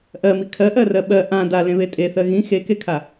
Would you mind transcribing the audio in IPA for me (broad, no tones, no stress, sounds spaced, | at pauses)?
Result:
ʔ ɜ m i kʰ ɜ ʔ ɜ r ɜ ɓ ɜ ʔ ã d a l ẽ β e tʼ e θ ɜ ɣ ĩ x e k e kʰ a